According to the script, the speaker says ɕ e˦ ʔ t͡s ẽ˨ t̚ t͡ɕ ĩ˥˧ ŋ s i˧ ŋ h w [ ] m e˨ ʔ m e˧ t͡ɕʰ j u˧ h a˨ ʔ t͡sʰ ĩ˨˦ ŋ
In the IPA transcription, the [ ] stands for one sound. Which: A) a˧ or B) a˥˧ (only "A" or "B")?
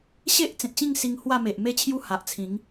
B